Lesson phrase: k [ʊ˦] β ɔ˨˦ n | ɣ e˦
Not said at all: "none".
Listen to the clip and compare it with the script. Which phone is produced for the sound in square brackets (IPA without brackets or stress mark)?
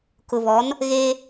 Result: ʊ˨